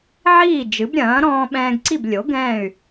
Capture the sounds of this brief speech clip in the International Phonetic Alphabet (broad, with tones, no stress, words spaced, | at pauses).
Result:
ʕiː˥˩d͡ʒɨ˩˥bɾʲɐ̃ː˩˥ ɾɔ̃ː˧ɓɛ̃ː˧ɡǀi˥˩b lʲo˩˥ ɡɛ̃ː˥˩y̯